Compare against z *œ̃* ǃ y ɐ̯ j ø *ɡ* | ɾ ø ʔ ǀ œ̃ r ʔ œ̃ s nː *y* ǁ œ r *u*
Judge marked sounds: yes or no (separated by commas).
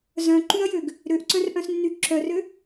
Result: yes, yes, yes, no